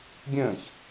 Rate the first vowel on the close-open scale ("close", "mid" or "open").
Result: mid